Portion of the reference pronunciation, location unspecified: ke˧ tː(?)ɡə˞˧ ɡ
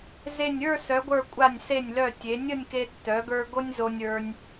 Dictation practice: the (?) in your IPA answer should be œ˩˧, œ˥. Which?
œ˩˧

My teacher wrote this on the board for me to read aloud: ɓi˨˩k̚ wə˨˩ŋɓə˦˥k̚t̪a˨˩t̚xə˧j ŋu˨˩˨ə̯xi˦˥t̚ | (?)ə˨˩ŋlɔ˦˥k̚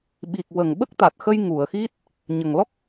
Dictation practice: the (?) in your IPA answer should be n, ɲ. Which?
ɲ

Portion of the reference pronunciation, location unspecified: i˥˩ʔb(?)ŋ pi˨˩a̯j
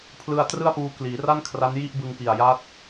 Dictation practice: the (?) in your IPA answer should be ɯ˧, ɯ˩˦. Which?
ɯ˧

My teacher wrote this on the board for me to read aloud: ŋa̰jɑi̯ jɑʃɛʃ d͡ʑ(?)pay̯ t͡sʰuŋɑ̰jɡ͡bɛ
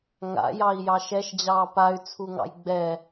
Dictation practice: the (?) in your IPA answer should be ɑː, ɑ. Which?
ɑː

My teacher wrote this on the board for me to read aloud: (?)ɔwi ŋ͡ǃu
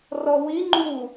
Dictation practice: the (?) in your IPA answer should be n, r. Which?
r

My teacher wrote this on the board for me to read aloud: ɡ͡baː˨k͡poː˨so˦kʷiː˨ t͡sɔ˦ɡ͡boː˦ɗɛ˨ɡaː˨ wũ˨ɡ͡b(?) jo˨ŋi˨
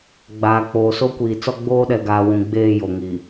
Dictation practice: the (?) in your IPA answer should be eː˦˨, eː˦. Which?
eː˦˨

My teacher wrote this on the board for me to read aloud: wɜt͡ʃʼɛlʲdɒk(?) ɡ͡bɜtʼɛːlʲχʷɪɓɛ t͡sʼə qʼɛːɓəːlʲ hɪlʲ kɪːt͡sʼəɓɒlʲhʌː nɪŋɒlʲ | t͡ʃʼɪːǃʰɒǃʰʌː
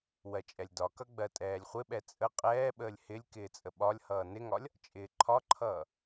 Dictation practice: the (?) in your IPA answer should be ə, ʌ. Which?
ʌ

